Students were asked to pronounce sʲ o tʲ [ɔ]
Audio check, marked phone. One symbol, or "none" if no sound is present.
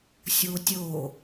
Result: o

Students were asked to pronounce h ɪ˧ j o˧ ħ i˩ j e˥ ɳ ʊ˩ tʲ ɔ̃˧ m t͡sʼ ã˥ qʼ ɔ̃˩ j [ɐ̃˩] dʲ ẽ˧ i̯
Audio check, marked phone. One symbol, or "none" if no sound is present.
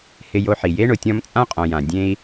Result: ã˩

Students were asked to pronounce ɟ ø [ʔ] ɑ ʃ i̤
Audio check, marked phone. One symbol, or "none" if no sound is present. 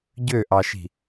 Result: ʔ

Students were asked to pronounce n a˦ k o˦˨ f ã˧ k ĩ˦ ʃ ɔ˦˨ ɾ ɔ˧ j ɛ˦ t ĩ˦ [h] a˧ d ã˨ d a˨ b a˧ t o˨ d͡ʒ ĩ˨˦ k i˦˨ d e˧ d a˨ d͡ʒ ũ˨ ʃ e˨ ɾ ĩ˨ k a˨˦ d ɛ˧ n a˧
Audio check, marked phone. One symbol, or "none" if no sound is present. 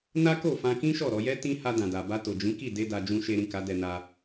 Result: h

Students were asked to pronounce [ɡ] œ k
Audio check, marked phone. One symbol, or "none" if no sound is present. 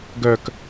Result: ɡ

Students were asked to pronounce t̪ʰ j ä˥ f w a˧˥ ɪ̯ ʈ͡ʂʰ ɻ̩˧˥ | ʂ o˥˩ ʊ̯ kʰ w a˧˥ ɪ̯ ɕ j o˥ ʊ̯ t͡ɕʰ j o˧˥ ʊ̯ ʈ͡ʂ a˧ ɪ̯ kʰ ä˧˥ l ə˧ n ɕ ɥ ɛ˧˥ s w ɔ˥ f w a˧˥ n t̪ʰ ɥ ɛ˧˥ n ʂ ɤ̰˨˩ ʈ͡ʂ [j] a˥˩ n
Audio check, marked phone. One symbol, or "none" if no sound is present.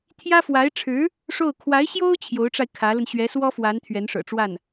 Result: w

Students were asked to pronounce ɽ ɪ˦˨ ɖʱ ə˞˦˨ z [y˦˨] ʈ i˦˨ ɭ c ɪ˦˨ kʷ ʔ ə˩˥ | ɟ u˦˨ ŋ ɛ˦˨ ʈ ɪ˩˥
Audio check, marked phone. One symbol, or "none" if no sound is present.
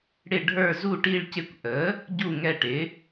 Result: u˦˨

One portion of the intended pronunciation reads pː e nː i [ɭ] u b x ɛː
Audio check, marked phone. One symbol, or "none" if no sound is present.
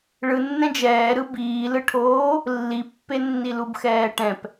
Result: l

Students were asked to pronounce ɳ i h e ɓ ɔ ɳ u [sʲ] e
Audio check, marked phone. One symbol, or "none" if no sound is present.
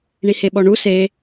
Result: s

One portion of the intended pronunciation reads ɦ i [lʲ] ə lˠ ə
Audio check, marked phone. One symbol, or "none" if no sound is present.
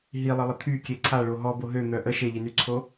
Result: lˠ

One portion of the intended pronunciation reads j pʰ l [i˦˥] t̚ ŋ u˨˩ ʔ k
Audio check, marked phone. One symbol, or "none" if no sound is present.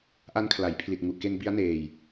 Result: i˨˩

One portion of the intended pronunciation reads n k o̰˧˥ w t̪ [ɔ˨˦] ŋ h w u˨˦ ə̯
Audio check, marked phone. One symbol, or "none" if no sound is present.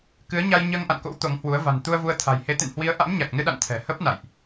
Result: o˨˦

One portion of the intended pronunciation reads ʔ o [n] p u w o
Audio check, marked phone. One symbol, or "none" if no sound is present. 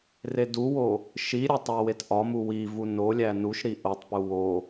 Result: tˤ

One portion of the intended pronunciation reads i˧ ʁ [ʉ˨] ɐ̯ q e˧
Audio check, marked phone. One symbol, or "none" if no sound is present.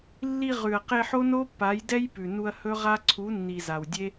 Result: ʉ˨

